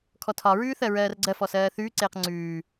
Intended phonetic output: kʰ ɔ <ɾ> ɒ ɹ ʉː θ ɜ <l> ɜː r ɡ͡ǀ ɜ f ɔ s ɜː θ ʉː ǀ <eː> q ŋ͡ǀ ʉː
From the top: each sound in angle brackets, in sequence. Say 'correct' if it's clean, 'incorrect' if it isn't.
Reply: incorrect, incorrect, correct

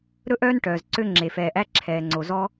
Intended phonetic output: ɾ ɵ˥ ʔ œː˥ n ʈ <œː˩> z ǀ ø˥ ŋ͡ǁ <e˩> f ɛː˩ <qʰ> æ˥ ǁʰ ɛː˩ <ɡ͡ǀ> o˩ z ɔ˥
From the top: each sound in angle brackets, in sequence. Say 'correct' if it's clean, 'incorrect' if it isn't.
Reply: correct, correct, incorrect, incorrect

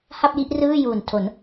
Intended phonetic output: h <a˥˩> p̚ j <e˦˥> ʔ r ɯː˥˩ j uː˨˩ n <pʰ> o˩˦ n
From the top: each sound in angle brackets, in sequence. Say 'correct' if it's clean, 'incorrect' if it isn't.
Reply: correct, incorrect, incorrect

